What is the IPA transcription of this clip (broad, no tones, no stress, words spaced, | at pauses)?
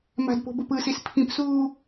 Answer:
ma̤dpo̤bop ɯsis pʰĩpsuː